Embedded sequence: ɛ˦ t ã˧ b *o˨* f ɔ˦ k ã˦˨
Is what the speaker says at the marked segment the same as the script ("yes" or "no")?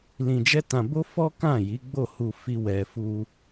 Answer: no